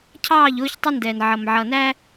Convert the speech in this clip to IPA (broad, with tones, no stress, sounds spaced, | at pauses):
cʰ ɑː˦˨ ʎ ʊː˦ ç tˤ ɪ˦ n d ɛː˨ n ʕ ʌ˨ m ʕ ʌ˨ n æ˦